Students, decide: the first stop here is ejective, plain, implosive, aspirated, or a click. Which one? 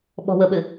implosive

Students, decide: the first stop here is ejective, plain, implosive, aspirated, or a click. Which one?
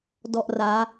plain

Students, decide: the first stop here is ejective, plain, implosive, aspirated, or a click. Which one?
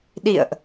implosive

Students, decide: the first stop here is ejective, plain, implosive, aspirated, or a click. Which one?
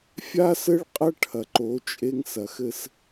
ejective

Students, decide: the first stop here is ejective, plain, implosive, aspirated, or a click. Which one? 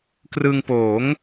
plain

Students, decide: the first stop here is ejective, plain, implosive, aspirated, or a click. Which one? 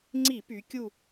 click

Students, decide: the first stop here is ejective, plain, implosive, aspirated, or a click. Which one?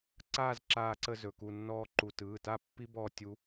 click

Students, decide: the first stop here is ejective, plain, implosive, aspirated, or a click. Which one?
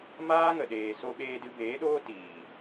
implosive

